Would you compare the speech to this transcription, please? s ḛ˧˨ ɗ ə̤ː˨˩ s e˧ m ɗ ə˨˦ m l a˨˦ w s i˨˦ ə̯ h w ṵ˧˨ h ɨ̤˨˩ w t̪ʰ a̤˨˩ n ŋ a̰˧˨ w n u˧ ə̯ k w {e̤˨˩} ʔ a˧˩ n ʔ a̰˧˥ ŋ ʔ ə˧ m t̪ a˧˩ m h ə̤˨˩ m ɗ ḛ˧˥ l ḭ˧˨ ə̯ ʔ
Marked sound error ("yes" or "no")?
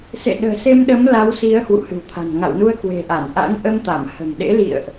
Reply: no